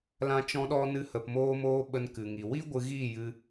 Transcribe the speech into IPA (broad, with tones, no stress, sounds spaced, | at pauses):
l ã˦ t͡ʃ ɔ̃˦ ɗ ɔ˦ n ɨ˧ h ə˨ p m oː˧ m oː˧ ɓ ə˧ n k ɨ˨ ŋ i˨ w i˦ ɡʷ ɨ˧ ɣ iː˦˨ j ɨ˧